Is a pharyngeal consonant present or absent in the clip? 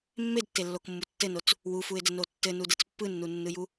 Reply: absent